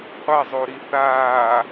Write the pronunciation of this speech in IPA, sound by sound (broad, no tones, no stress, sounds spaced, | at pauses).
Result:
qʷ a zˤ o ɾ i θ aː